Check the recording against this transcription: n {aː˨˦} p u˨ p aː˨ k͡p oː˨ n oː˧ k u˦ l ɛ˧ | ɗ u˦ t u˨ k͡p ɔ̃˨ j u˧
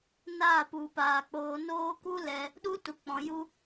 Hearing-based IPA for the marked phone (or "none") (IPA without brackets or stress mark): aː˦˨